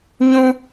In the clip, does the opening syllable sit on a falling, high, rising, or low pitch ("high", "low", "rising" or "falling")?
high